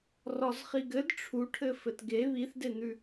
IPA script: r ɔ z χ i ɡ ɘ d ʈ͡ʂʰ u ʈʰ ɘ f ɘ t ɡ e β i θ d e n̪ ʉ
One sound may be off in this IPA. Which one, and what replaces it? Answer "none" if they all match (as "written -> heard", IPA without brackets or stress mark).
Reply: none